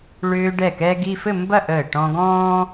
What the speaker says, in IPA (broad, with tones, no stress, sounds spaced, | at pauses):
ɭ ʏː˧ ɖ ɛ˧˩ k ɛː˧ ɡ i˥˧ f ɘ˥˧ m b ɐ˥˧ ʔ əː˧˩ ʈ ɔ̃˧ ɡ ɔ̃ː˥